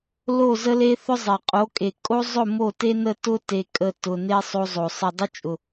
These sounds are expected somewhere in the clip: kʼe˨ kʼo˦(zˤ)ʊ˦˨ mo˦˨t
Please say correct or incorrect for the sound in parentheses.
correct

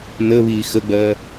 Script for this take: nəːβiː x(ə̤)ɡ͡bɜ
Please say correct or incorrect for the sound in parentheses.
incorrect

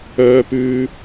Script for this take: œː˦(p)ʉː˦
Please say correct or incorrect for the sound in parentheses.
correct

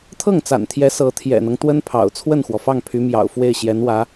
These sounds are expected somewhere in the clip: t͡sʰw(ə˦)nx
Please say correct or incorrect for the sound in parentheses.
incorrect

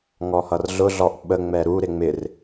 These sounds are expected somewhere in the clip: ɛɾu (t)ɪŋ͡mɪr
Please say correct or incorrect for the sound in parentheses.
incorrect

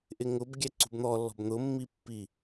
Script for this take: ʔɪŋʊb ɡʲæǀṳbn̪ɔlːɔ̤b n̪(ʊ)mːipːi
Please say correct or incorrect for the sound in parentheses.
correct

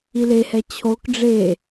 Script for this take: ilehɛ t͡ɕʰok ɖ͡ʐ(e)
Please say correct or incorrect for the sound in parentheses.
correct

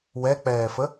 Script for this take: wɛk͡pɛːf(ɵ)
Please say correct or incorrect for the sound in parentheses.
incorrect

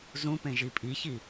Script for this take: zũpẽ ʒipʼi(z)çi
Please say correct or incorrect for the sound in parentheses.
incorrect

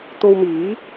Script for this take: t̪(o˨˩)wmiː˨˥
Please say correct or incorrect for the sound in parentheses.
incorrect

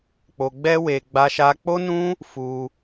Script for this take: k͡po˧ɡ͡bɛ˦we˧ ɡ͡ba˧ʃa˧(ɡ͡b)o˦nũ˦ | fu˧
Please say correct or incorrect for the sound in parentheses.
incorrect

